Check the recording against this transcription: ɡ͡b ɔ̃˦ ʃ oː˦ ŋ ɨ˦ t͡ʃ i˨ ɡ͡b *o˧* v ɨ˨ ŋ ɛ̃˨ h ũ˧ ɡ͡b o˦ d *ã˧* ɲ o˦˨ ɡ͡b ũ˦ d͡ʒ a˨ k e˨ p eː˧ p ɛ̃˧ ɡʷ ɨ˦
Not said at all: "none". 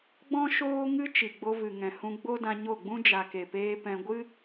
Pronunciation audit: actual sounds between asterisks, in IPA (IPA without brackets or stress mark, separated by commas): o˧, ã˧